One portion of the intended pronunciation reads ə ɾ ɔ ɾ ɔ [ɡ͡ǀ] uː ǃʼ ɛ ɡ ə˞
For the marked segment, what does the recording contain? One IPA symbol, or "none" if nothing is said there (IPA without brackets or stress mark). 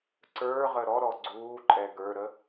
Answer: ɡ͡ǀ